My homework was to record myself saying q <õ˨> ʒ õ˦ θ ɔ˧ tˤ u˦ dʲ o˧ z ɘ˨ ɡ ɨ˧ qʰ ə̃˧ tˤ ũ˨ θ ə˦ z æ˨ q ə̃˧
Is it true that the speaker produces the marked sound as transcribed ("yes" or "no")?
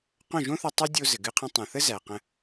no